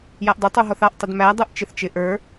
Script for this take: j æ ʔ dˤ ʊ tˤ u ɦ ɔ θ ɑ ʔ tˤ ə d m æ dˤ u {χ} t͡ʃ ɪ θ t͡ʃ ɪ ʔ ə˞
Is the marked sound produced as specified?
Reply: no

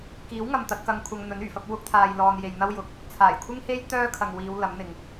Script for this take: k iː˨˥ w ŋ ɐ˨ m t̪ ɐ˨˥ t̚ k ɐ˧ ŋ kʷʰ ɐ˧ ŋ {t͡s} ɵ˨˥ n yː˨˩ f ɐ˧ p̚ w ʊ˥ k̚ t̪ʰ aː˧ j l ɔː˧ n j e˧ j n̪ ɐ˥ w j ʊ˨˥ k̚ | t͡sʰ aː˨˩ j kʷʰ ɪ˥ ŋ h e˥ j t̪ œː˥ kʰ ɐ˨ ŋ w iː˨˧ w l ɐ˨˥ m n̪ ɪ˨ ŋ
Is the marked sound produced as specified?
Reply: no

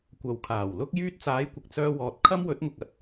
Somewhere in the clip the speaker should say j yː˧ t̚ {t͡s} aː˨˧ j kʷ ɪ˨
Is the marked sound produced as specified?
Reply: yes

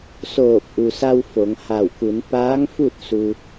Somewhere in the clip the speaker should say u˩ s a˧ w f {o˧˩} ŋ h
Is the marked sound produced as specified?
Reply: no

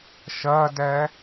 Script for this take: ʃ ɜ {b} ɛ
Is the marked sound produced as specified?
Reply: no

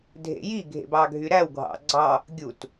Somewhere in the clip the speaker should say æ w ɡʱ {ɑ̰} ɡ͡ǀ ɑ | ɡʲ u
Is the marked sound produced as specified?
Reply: yes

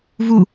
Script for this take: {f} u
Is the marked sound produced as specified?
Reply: no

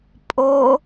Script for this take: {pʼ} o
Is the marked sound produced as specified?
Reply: yes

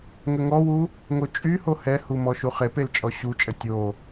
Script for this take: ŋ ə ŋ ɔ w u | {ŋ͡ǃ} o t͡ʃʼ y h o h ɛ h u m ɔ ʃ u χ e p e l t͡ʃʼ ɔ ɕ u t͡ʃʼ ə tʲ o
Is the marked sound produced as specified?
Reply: no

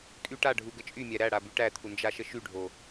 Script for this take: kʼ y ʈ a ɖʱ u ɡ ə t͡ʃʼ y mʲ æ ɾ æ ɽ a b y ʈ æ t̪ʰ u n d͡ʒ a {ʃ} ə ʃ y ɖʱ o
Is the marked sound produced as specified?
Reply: yes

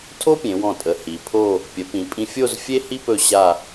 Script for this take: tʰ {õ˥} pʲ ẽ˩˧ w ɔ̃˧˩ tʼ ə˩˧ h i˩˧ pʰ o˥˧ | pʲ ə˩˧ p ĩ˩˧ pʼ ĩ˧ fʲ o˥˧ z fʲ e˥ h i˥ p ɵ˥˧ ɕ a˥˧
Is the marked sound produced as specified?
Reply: no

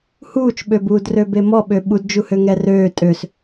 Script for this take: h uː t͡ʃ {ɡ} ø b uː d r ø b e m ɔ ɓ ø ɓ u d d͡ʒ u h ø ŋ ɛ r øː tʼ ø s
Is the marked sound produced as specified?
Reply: no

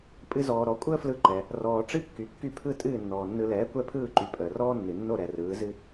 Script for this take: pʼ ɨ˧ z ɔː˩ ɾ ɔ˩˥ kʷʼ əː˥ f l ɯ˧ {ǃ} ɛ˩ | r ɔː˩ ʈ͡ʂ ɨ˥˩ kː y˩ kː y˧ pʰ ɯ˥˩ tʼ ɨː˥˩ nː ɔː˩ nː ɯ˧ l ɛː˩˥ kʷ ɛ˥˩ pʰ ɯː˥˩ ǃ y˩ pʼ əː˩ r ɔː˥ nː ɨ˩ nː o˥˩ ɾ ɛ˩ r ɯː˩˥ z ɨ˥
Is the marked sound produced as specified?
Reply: yes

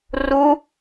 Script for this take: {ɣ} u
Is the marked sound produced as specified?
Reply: no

